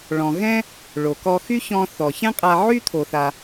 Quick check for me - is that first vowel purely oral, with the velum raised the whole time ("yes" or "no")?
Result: no